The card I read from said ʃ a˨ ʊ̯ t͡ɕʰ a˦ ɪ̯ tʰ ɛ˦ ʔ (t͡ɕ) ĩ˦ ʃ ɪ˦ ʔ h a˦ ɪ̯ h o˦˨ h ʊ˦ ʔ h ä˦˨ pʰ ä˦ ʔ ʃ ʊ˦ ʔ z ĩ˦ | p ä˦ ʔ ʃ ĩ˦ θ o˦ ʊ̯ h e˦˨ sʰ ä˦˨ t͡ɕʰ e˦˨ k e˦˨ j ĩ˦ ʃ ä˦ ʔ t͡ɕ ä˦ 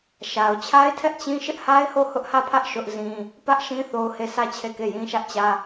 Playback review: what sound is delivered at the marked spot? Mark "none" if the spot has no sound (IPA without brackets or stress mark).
t͡ɕ